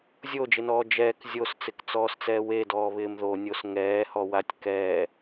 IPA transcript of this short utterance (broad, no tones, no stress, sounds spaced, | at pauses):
zʲ o d͡ʒ ɪ n ɔː d͡ʒ ɛː k zʲ o s t͡s ɪ k t͡s ɔː s t͡s ɛː w e d ɔː β ɪː m ð o nʲ o s ŋ ɛː h ɔ w a tʲ k ɛː